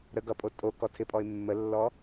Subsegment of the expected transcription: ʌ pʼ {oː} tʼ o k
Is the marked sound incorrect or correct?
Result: incorrect